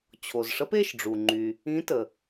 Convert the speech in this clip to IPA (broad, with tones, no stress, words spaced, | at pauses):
t͡ɕʰo˩zʂə˨˥pe˩˧˩ʃɖ͡ʐu˩ ŋ͡ǃy˩ | ĩ˨˥ tə˩